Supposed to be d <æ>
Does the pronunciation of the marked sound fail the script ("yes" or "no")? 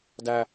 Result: no